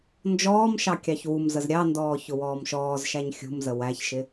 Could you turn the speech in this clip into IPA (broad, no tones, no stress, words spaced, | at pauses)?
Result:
nd͡ʒɔːmʃɑ kʲɑçwumzəz ɾʲɑndɔː çʊwɔːmʃɔːzʃæɲ xʲṳmzə wæçʃɪ